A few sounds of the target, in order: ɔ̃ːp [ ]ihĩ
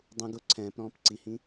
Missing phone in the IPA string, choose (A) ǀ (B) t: A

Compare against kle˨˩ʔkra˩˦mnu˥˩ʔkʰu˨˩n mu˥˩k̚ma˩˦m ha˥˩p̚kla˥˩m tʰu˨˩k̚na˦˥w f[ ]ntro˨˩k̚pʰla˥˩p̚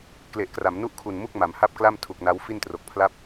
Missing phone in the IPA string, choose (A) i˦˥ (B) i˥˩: B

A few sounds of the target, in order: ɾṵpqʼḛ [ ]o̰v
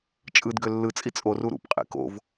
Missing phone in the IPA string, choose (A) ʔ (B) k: B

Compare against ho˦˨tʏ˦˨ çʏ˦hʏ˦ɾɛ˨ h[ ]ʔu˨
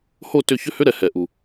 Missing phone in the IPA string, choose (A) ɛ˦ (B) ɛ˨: B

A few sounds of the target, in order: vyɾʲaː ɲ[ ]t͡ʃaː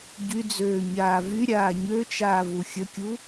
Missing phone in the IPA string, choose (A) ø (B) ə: A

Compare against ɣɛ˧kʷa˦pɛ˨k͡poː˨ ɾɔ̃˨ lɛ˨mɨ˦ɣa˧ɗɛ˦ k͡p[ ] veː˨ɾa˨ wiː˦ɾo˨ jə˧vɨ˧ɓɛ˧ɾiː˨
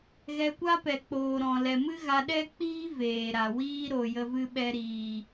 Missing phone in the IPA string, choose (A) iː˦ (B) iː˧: A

